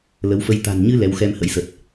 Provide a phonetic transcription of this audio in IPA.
lə˨˦wfə˧j t̪a̤˨˩nɲɨ˧ lɛ˨˦wxɛ˧mhə̰˧˥jsə˨˩t̚

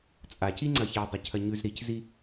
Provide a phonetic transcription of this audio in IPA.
t͡sʼaciŋ͡ǀɐ çedˤicʰɐ ɲʉz ɾiczi

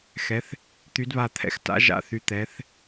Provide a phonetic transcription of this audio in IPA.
xɛ˨˦θ | t̪y˨˦dβa˧˩t̪ʰɛ̰˧˩x ta̰˨˦ʒa̰˨˦ θy˨˦t̪ɛ˨˦θ

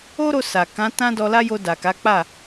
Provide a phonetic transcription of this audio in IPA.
o˦ɾo˧sa˨ kã˨˦ tã˦dɔ˧la˦ jo˧da˨ka˨˦k͡pa˦˨

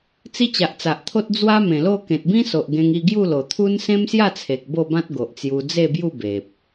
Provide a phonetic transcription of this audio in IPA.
t͡si˦t͡ɕa˨ʔt͡sa˨ʔt̪ʰo˦t̚ d͡zwa˦mẽ˨˩lo˥˧ kẽ˨t̚bĩ˦so˨ʔ ɡẽ˧ŋi˧ɡju˥˧lo˨˩ t̪ʰu˦n sẽ˦msja˥˧t͡sʰe˨k̚ bo˥˧bã˦t̚ɡo˨ʔt͡sju˧ d͡ze˥˧bju˥˧be˨p̚

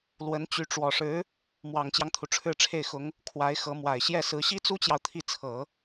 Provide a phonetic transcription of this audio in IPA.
lwə˧˥n t͡ɕy˧˥ʈ͡ʂwɔ˨˩ʂɻ̩˧˥ | mwɑ˨˩ŋt͡ɕjɑ˦ŋt̪ʰu˩ ʈ͡ʂʰɻ̩˥˧ʈ͡ʂʰe˥˩ɪ̯xʊ˧˥ŋ | kʰwa˧˥ɪ̯xɤ˧˥mwa˨˩ɪ̯ ɕjɛ˥˩sɹ̩˧˥ ɕi˥t͡su˥t͡ɕjɑ˨ʊ̯ t̪ʰi˥˩t͡sʰɤ˨˩˦

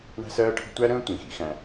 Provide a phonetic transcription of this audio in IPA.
ɳæ̤˦sɜː˦ʈʰə̤˦ tʷæ˦ɾə̃ː˦tʷĩ˩xḭ˨ xæ̃˨

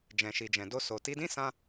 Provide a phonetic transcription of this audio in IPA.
d͡ʒɛ̃˨ʃi˨d͡ʒɛ̃˨ do˧so˨ ti˧dĩ˦sã˧

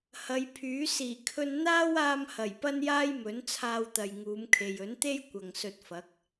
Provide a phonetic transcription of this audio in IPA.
hɐ˨˧jpʰyː˨˥ siː˨˩kʰɵ˧n n̪aː˥waː˧mhɐ˨˩j pɐ˥njaː˥jmɵ˨˥n t͡sʰaː˧wt̪ɐ˨jŋuː˨˧mkʰe˨j ɵ˨˥nt̪e˥j kʷɐ˨ŋsɵ˧t̚fɐ˨˥k̚

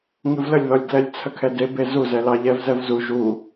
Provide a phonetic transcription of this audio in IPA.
ŋɨvləlʲðɔlʲdlɛlʲ t͡sʰəkʰɛdebe zuzɛ lɑʎɛvzɛvzu ʒu

